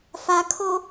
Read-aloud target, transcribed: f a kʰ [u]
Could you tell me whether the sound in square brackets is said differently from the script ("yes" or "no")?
yes